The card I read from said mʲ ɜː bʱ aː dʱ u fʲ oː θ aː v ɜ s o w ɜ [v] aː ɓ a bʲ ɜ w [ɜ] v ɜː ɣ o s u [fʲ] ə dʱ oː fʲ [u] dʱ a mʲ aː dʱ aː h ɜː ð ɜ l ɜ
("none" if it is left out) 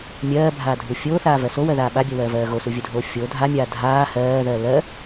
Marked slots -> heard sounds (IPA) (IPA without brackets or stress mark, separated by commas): ð, ɜː, vʲ, o